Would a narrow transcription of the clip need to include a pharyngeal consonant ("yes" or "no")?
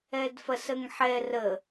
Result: yes